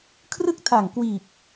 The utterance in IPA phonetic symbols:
kʰrɯ˥˩k̚tʰaː˨˩ŋkwiː˨˩p̚

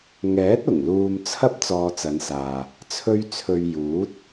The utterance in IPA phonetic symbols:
ŋɛː˨˥t̚ʊ˨˩ŋ luː˧mt͡sʰɐ˥p̚ t͡sɔː˧t͡sɐ˨˧nsaː˨ | t͡sʰɵ˧ɥt͡sʰɵ˨ɥ juː˨˥t̚

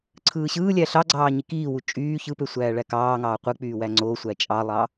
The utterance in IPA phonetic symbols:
ǀʰɯːɕɯːlʲæ ɬɑɡ͡ǀɑː ɲikiːwu t͡ʃʼyː çɯpø sʷæːɭækɑːŋɑː qʷɯk͡pyː wæŋ͡ǀosʷæ t͡ʃʼɑlˠɑ

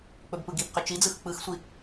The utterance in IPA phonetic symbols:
k͡pɵbpɯɡibqʏ t͡ʃid͡zɯx k͡pɯxsʷi

